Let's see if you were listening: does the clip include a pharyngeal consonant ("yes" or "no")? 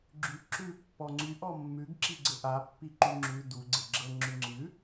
no